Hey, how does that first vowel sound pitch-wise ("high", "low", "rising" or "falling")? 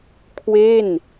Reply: falling